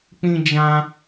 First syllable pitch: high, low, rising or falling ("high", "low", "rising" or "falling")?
high